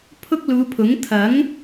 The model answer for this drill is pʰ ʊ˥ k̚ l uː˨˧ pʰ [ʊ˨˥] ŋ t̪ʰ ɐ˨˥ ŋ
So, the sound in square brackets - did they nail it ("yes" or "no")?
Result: yes